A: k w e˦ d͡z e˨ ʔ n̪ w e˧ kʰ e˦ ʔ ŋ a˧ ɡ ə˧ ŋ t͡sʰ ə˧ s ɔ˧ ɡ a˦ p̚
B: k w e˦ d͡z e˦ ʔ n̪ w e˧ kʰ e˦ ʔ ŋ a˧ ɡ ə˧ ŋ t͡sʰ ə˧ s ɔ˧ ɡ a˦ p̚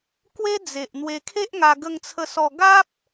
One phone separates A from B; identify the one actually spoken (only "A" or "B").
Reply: A